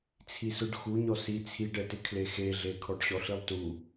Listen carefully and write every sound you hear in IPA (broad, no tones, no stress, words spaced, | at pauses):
t͡sʰisʊɖ xuɲɔ si t͡sʰiɖɛtɪ kʰlexeɮe kʰɔɖɕɔɬilˠtu